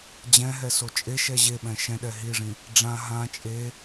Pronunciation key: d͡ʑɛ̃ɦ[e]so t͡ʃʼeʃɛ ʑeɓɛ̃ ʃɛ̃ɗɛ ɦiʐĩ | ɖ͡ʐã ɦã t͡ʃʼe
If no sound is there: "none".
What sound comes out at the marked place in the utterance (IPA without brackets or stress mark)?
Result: ɛ